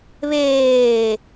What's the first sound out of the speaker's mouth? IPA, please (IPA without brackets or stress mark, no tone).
β